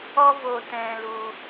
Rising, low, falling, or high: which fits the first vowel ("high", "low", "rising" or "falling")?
high